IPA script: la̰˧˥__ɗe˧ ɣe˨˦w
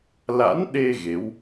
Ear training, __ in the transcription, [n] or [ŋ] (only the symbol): n